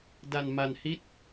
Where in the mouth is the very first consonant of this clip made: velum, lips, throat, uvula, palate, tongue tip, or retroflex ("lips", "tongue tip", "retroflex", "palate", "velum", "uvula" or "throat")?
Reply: tongue tip